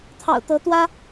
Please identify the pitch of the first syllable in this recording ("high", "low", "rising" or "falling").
low